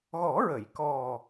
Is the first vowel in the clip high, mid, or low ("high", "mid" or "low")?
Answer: mid